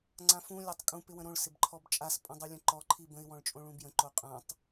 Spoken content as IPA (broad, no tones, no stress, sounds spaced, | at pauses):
ŋ͡ǀ ã f ũ lʲ a tˤ kʼ ũ p ɪ w ə̃ ɾ õ ɭ s ɪ b ǃʰ ɔ b t͡ʃʼ a s pʼ ɔ̃ dˤ u lʲ ə̃ ǃ ɔ ǃʰ i b ə̃ ɪ̯ w ɔ̃ ɭ t͡ʃʼ õ ɭ ũ b j ə̃ ǃ o qʼ ã tˤ